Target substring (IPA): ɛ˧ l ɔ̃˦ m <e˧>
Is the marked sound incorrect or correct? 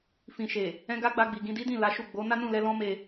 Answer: correct